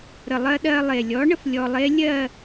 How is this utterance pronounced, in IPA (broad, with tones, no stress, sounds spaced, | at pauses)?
ɾ ə˨˩ lˠ ɜ˧ ɗ ɜ˧ lˠ e˨˩ lʲ ɔ˨˥ ɳ ə˦˥ f lʲ ɔ˧ lˠ e˦˥ lʲ ɜ˥˧